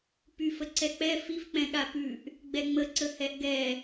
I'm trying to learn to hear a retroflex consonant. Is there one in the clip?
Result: no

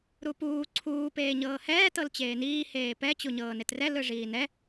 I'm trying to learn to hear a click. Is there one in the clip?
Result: yes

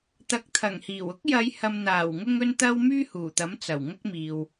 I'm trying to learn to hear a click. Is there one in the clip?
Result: no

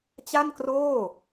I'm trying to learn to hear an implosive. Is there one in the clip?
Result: no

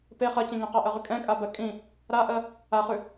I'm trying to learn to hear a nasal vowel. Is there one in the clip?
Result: yes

